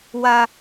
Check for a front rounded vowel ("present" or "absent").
absent